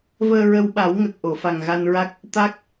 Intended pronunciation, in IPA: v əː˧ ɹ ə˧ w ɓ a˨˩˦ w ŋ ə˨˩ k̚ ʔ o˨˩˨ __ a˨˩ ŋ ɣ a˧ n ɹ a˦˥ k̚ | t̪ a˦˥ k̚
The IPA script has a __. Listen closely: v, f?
f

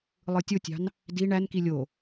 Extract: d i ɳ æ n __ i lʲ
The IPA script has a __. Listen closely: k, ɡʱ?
k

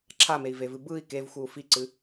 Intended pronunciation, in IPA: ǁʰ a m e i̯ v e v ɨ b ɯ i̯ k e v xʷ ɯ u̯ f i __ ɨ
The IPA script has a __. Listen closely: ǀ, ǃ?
ǀ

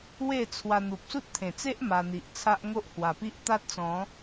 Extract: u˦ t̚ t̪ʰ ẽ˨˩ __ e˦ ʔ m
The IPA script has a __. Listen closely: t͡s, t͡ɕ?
t͡s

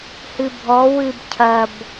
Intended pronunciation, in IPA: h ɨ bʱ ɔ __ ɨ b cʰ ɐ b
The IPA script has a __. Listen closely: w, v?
w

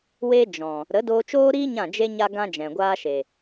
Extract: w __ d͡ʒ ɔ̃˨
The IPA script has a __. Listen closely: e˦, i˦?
e˦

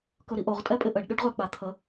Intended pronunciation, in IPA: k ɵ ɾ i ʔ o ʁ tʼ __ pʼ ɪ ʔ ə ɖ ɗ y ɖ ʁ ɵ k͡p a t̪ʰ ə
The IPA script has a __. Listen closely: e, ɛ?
ɛ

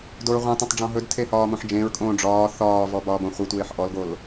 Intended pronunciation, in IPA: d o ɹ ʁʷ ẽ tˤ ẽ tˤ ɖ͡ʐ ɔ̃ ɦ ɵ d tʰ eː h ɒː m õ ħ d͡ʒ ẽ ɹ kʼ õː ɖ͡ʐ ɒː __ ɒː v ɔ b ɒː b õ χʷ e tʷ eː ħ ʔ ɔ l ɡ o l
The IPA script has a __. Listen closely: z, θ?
θ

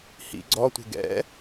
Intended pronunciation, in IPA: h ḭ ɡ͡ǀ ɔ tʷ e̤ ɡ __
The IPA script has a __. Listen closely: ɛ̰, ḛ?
ɛ̰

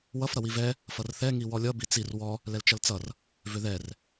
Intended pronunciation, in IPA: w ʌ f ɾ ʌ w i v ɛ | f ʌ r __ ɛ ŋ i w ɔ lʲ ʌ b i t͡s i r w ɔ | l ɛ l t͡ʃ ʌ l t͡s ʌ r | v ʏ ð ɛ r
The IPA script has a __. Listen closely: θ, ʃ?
θ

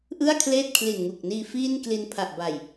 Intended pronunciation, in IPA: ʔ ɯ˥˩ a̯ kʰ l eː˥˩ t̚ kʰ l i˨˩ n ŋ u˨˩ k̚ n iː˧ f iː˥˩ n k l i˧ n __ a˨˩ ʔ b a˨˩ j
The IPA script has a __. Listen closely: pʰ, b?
pʰ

